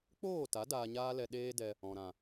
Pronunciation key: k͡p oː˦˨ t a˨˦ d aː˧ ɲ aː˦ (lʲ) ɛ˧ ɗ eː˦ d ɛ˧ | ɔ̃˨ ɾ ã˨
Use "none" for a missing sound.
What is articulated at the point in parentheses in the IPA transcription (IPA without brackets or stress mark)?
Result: l